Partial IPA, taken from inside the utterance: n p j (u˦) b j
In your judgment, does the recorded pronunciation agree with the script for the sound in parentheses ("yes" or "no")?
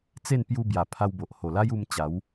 no